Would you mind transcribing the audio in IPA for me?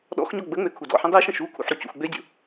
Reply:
ɗ ɔ̰ x ɲ ɔ ɡ͡b ə ŋ͡m ø kʰ u d ɔ̰ ħ ə̃ dˤ i ʃ ə̃ ʃ u kʰ ṵ ħ ɾ u c ṵ x ɡ͡b ø dʲ ṵ

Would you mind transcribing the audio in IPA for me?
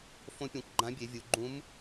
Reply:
f õ˧˥ pʲ õ˩˧ kʷ ɡ͡ǃ ã˧˥ bʲ e˩˧ vʲ u˩˧ ɡ͡ǃ ũ˧˥ m

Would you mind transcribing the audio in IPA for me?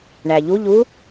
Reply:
ɳ æ ʎ u ʎ u

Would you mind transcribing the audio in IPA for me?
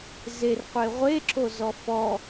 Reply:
z e r qʷ e ʁʷ e ǁ o z ɔ f ɔ

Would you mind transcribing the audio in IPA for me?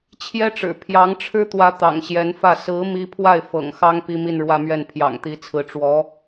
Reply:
t͡ɕʰ j ɛ˥ ʈ͡ʂ ɻ̩˨˩ pʰ j ɑ˧˥ ŋ ʈ͡ʂʰ ɻ̩˥ t̪ w ä˧˥ t̪ ɑ̰˨˩ ŋ ɕ j ɛ˧˥ n f ä˥˩ s ɹ̩˧˥ m i˥ pʰ w a˥˩ ɪ̯ f ɤ̰˨˩ ŋ x ɑ˥ ŋ p i˥ m i˥˧ n ɻ w ä˥˧ m ɥ ɛ˥˩ n pʰ j ɑ̰˨˩ ŋ t̪ i˧˥ t͡sʰ ɹ̩˧˥ ʈ͡ʂ w ɔ˧˥

